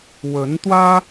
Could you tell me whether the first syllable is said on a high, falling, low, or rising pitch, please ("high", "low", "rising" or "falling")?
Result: rising